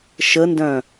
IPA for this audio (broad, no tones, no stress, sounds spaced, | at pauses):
ʃ ə n d œ̃